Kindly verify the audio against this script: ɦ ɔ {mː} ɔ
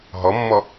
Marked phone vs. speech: correct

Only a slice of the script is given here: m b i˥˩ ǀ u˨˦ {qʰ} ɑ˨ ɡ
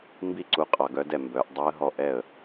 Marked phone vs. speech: incorrect: qʼ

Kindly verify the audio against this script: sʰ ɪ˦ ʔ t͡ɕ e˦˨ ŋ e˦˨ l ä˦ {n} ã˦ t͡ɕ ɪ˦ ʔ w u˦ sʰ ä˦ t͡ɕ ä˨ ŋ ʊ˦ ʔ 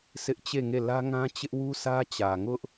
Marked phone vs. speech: incorrect: ŋ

